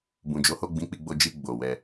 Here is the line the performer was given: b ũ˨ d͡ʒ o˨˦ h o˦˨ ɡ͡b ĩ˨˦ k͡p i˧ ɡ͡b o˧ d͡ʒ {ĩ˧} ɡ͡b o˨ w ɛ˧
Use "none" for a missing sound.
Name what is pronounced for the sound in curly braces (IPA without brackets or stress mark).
i˧